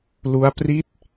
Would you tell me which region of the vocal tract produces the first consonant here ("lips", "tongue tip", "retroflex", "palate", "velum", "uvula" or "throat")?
tongue tip